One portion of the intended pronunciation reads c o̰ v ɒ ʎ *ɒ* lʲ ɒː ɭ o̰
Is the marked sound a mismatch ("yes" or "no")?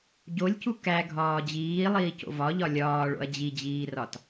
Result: no